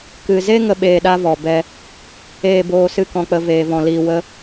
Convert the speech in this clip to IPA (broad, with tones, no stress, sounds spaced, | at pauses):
k ɨ˨ z e˦ ŋ ə˦ ɓ eː˧ ɗ a˦ v ɔ˨ b ɛ˦ | eː˦˨ b oː˧ s ɨ˦ k ɔ̃˧ k͡p ə˧ v eː˧ v ɔ̃˧ l iː˦ w ə˦